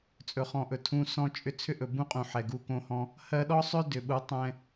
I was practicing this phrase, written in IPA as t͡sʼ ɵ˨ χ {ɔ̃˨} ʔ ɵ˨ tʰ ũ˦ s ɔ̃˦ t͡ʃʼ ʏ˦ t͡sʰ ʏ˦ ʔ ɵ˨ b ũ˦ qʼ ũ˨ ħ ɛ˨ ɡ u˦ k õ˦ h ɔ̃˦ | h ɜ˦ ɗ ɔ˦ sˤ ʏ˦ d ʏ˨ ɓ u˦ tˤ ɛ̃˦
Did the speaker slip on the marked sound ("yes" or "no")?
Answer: no